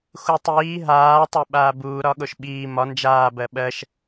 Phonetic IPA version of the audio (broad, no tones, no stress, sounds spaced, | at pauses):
x u tˤ iː ɦ aː tˤ ə˞ ɓ aː b uː ɾ ɒ ɠ o ʃ ɓ iː m ɒ n d͡ʒ aː b ɜ ɓ ɜ ʃ